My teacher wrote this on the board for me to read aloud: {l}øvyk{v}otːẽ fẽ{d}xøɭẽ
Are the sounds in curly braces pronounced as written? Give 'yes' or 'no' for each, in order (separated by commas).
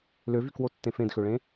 yes, no, yes